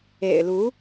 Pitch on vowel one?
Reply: low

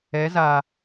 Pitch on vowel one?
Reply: rising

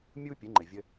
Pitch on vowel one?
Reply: high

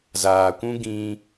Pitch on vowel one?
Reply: low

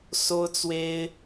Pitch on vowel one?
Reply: high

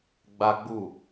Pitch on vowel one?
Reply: high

